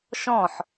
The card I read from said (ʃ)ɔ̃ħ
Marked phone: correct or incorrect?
correct